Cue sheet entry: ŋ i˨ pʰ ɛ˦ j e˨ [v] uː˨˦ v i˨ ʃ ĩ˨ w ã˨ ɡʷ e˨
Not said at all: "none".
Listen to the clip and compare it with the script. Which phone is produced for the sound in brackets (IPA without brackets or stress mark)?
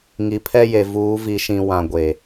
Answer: v